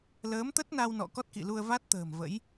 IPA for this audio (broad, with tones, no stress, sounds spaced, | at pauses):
l əː˨˦ m t̪ ə˦˥ t̚ n a˧ w n ɔ̰˧˨ k ɔ˦˥ t̚ k ḭ˧˨ l u˧ ə̯ v a˦˥ t̚ t̪ ə̤ː˨˩ m v ə̰˧˥ j